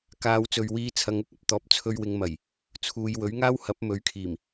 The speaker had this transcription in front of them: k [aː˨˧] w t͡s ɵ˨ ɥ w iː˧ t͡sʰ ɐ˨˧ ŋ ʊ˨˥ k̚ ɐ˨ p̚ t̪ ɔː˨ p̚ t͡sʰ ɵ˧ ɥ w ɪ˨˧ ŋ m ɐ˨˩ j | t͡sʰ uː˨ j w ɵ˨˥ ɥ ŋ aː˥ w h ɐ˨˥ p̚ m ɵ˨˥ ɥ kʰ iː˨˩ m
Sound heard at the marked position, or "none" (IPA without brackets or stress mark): aː˨˧